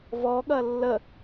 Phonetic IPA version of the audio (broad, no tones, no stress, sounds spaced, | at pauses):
v ɔ ɠ ɐ lː ə